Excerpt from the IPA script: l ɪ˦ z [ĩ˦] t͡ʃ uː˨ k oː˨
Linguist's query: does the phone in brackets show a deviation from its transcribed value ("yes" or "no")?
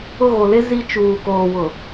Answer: yes